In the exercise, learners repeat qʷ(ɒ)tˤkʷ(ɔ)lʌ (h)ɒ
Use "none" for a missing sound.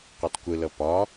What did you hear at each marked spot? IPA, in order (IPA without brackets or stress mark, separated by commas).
ʌ, ə, p